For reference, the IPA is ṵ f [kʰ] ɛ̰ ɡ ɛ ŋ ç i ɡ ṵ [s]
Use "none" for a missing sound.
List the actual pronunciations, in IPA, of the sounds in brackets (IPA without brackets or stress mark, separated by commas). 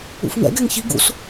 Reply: ŋ, s